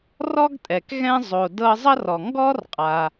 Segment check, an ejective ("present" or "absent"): present